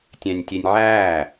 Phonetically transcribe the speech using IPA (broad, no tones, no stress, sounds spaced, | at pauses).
tʲ æ̃ nʲ tʲ e nʲ ʕ æː